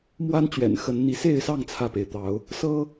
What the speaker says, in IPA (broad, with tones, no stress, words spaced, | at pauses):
mwa˦nt͡ɕɥɛ̰˨˩n xə˨˦nn̪i˨˦ se˥˨ɪ̯sɑ˥˨ŋ t͡sʰä˥˨pe˩ɪ̯t̪ɑ˨˦ʊ̯ | sɤ˦